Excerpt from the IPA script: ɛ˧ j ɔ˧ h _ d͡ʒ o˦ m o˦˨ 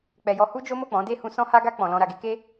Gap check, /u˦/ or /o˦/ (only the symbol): u˦